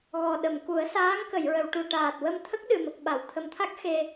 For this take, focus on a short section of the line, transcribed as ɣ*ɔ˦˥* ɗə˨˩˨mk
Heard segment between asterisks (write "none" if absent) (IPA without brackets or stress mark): ɔ˨˩